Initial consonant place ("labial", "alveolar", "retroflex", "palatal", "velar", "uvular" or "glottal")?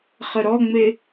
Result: uvular